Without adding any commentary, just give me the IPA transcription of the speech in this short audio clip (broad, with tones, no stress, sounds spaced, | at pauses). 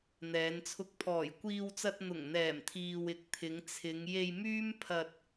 n̪ ɛː˨˧ n t͡sʰ ʊ˧ k̚ pʰ ɔː˨˩ j kʷ iː˧ w t͡s ɐ˧ t̚ n̪ ʊ˨˩ ŋ n̪ ɛː˨˩ m t̪ʰ iː˨ w ɪ˨ k̚ t̪ʰ ɪ˨˧ ŋ t͡sʰ ɪ˨˧ ŋ j e˧ j m yː˥ m pʰ ɐ˧ t̚